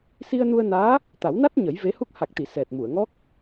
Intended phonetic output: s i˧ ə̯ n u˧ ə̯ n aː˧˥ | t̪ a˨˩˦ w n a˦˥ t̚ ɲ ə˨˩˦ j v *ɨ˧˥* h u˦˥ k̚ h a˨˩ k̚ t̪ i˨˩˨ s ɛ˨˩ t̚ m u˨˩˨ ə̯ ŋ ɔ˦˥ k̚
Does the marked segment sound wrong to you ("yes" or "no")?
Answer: yes